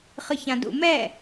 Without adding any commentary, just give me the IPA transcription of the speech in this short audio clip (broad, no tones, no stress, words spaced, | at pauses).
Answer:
χɯçãdṵ mɛː